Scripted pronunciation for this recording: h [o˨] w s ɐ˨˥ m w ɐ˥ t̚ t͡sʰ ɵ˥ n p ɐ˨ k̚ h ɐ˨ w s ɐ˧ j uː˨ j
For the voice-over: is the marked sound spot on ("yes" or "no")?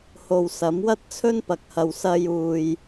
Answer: yes